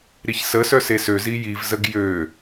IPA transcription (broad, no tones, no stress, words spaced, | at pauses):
ɾiçsəsœ sesøzi jivzəɡ jø